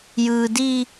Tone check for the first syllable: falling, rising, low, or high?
high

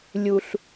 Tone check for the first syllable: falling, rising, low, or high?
low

